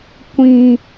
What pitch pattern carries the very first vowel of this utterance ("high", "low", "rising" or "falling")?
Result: low